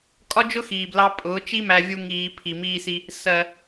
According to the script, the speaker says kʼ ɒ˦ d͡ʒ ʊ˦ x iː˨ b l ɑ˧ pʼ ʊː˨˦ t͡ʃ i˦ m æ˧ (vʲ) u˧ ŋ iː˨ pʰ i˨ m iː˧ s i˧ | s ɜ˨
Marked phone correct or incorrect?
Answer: correct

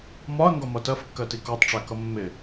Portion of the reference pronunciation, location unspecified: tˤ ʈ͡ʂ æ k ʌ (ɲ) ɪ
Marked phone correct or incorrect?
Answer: incorrect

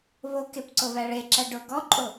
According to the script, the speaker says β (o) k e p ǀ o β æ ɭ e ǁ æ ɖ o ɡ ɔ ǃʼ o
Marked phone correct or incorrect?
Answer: correct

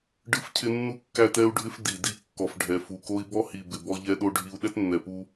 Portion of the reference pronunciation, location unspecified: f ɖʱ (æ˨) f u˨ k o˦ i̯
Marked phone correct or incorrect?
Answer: incorrect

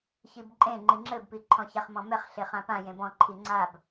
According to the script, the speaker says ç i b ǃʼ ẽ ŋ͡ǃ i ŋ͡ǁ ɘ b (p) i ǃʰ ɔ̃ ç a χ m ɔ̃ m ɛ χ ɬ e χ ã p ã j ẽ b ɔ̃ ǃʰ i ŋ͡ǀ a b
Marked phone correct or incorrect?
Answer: correct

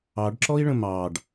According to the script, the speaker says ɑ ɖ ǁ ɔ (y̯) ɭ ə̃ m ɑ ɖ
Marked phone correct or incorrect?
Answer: incorrect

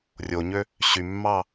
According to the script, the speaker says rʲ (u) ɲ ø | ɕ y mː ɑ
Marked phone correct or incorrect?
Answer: incorrect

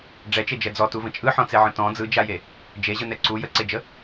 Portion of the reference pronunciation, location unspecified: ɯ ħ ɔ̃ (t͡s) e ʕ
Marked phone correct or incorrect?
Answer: correct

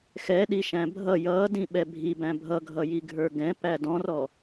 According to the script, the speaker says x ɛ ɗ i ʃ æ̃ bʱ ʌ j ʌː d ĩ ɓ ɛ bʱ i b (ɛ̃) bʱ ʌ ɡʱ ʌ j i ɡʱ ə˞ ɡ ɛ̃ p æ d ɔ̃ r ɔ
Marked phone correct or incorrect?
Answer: incorrect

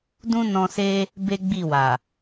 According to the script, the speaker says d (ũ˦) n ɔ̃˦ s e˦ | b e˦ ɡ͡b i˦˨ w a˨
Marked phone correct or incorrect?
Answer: correct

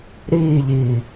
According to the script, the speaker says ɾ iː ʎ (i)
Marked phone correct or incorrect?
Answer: incorrect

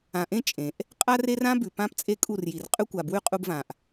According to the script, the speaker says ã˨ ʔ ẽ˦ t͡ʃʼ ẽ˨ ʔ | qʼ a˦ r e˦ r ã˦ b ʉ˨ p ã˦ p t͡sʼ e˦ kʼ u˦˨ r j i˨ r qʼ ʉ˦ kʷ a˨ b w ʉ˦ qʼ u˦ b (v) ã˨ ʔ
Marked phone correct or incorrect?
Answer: correct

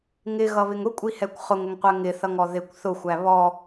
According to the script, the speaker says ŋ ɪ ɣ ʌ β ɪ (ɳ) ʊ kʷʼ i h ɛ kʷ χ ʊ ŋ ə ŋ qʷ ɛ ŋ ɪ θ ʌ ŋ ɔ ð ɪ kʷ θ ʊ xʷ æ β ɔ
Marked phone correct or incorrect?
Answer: incorrect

